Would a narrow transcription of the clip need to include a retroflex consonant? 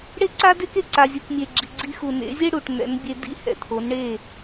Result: yes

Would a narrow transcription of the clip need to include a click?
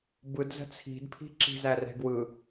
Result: yes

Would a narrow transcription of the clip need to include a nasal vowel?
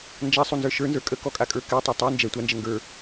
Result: no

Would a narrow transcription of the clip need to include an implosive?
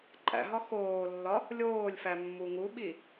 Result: yes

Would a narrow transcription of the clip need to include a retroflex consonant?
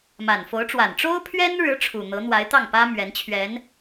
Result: yes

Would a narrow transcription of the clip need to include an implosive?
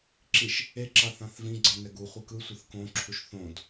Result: no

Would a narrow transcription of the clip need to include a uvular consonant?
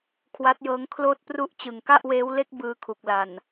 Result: no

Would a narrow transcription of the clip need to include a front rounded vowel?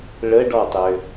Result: yes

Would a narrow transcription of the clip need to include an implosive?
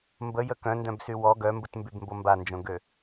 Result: no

